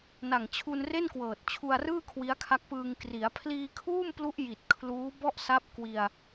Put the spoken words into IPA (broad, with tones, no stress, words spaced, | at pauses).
na˨˩ŋt͡ɕʰu˧nre˥˩nkwɤː˨˩t̚ t͡ɕʰu˧a̯rɯː˥˩ kʰwi˦˥a̯kʰa˦˥k̚pɯː˧ŋ kri˩˦a̯ pʰliː˧kʰuː˥˩mplu˦˥ʔ ji˨˩t̚kʰluː˦˥ bɔ˥˩ʔsa˦˥p̚ kwi˧a̯